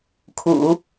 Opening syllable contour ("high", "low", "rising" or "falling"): low